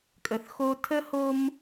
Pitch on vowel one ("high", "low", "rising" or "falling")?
low